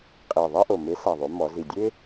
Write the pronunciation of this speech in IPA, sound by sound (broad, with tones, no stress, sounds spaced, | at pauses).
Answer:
qʼ e˨˩ ðˤ ɛ˥ ʔ o˨˩ m e˨˥ s a˨˩ ðˤ o˩˧ m ɔ˩˧ z i˨˩ dʲ e˥